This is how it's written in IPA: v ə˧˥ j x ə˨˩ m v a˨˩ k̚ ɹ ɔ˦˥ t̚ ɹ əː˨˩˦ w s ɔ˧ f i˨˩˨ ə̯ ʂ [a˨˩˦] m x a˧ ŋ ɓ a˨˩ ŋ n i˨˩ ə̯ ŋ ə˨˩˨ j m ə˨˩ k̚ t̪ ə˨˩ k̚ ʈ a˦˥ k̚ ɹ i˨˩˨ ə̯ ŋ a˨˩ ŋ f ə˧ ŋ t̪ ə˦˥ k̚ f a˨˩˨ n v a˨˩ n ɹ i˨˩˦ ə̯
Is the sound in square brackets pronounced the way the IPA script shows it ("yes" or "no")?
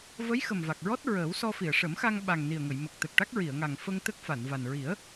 no